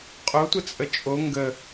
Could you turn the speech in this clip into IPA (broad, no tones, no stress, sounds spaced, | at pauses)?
qʼ o tʷ ə t͡sʼ ə t͡ʃʼ o ŋ ɡ ə